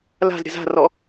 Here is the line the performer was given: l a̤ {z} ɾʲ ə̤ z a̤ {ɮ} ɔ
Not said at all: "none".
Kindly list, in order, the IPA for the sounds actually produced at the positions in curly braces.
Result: z, r

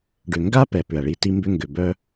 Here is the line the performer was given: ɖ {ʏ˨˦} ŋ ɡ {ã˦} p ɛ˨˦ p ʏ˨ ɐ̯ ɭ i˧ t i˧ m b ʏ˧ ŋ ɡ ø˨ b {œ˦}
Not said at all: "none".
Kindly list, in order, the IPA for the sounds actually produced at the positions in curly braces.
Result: ʏ˨, a˦, œ˦

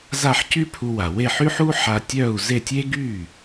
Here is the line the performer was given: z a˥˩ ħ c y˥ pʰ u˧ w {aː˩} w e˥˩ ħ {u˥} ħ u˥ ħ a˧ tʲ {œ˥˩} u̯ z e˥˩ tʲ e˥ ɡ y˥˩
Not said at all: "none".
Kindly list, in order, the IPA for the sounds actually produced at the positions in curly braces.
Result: a˩, y˥, œ˥˩

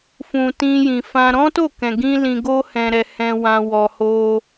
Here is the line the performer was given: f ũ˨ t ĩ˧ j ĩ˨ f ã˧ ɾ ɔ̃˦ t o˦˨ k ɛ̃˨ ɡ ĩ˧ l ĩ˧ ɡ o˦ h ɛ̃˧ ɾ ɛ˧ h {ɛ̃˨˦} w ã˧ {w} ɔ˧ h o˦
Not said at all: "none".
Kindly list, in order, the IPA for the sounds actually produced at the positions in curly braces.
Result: ɛ̃˧, w

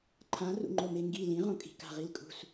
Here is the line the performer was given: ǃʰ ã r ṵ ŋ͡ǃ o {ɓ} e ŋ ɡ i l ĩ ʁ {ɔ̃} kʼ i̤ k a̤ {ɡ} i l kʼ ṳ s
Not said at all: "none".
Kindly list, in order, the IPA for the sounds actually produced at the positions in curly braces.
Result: m, õ, ʁ

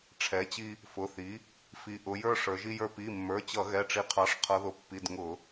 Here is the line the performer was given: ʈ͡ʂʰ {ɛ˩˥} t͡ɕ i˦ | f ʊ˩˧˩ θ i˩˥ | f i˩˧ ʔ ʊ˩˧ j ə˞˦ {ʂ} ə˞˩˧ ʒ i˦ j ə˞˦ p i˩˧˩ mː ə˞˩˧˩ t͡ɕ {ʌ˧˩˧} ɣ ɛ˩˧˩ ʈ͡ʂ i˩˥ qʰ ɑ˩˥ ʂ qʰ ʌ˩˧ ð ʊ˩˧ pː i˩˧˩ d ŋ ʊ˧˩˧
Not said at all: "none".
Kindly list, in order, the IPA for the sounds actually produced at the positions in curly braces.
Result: ɛ˩˥, ʂ, ʌ˧˩˧

